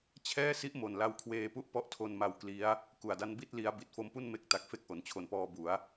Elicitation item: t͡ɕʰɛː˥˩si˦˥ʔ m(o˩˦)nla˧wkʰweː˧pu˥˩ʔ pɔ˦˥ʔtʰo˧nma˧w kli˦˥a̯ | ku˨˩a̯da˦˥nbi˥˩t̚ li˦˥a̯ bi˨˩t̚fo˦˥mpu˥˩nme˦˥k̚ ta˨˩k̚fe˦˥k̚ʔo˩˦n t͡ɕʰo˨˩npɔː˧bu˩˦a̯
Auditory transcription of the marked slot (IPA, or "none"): o˨˩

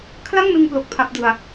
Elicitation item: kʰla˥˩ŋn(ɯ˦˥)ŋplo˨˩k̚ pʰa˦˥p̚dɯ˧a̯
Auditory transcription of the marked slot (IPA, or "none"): ɯ˧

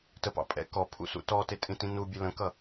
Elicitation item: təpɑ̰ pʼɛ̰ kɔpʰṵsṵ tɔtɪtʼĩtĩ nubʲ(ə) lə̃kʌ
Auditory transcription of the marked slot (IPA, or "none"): ə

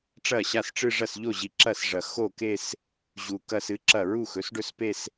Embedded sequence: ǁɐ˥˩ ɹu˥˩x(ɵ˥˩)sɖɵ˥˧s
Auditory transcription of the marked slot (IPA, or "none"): ɵ˩˥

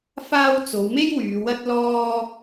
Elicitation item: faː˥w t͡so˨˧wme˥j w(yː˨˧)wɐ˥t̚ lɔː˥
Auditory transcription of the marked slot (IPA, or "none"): yː˨˧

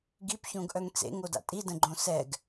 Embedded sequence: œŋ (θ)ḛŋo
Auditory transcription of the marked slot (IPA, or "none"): t͡s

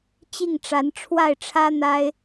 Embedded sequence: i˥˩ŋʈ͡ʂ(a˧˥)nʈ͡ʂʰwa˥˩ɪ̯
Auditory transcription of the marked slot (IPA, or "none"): a˧˥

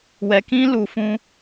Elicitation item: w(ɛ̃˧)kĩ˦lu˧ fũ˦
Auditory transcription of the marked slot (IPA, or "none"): ɛ˧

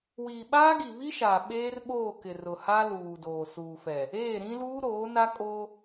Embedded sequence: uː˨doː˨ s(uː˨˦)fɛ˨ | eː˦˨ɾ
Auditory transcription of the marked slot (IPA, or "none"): uː˨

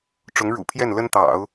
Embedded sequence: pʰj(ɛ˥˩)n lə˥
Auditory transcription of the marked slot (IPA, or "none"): ɛ˥˩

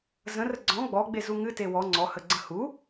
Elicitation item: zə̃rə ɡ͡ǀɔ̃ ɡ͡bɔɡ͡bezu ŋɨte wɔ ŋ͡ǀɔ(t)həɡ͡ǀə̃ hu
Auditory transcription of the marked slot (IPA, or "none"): none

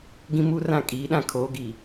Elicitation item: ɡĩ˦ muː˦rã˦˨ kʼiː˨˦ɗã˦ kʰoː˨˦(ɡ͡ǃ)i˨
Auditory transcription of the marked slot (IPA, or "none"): ɡ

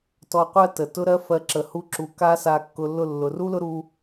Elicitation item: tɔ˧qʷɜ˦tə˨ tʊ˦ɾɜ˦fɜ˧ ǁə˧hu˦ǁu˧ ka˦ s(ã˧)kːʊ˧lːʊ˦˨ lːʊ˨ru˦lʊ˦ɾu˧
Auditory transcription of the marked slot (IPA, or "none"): a˧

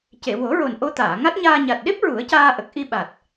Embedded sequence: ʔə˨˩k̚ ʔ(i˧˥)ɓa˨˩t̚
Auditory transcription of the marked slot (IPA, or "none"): i˧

